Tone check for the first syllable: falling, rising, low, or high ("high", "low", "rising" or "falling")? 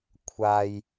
high